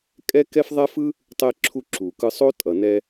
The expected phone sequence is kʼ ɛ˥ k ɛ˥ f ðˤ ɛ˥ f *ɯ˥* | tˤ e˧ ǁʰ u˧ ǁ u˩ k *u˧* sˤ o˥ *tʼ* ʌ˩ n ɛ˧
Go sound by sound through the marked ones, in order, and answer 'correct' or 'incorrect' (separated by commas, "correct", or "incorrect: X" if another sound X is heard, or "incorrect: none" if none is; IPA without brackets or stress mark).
correct, incorrect: ɯ˧, correct